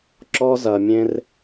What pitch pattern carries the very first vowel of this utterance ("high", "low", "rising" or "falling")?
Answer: high